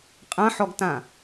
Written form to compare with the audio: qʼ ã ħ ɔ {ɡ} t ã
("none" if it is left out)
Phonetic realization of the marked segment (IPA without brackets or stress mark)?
ɡ